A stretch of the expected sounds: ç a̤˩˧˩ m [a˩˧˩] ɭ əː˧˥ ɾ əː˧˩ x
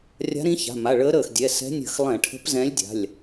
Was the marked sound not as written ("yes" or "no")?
no